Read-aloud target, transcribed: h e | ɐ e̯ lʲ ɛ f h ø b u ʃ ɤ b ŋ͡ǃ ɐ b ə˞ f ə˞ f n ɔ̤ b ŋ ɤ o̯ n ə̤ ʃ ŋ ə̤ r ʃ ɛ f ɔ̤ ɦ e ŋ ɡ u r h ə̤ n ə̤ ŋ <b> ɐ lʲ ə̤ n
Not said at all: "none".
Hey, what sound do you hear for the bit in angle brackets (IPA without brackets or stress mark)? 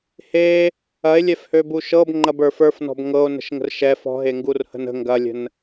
ɡ